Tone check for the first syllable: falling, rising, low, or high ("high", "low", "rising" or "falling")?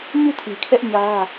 falling